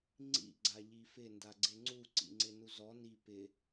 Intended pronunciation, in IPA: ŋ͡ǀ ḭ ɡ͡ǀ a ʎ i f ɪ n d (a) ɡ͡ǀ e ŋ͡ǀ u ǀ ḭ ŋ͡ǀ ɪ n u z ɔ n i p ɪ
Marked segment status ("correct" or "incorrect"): correct